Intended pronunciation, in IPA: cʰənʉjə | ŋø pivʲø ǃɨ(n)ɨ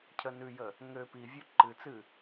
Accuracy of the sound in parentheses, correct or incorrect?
incorrect